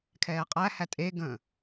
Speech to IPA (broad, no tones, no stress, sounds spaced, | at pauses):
kʰ ɛː qʼ æ h æ tʼ e ɡ ə̃